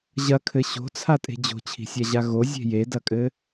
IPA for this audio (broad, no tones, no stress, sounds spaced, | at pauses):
ʑ ɐ kʰ ɘ ɕ o̤ t͡sʰ a tʼ e̤ d͡ʑ o̤ t͡ɕʰ i̤ sʲ a ʑ a ɣ o zʲ e̤ j e d ɐ kʼ ɘ